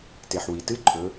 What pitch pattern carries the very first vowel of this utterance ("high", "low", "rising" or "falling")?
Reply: low